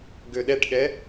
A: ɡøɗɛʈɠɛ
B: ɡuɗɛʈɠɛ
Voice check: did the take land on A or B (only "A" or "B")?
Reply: A